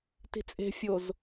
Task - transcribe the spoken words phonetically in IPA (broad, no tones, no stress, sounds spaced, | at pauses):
t i̤ t͡sʼ e̤ fʲ o z